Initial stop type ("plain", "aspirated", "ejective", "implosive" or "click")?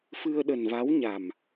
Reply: implosive